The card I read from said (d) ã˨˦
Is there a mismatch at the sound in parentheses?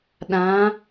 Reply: yes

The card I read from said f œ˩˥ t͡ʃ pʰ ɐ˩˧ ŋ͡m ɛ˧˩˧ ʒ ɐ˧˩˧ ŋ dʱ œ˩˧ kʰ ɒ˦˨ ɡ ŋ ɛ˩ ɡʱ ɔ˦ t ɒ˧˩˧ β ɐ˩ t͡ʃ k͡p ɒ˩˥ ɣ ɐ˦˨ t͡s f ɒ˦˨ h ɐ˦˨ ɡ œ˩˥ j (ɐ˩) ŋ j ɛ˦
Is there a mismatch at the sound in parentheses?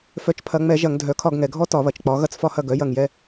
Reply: yes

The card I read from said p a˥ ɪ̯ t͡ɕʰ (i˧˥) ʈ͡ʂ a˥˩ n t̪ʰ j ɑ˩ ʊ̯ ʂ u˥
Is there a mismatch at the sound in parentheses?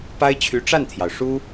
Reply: yes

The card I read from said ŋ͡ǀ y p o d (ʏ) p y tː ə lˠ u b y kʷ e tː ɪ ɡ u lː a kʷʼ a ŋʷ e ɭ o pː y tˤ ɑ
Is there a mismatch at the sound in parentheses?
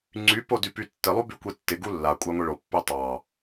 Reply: yes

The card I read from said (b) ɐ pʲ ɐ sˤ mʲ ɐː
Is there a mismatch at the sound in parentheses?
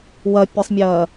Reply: yes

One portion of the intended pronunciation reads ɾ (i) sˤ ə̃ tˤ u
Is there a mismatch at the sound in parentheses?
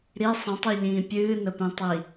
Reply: no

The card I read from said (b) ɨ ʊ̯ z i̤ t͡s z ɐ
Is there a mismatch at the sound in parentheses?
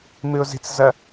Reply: yes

